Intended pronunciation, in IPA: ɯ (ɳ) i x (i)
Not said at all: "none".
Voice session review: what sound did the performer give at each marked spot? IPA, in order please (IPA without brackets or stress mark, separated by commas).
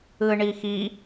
ɳ, i